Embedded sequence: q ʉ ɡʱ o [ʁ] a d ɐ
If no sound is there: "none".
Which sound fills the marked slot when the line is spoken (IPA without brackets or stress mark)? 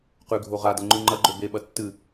ʁ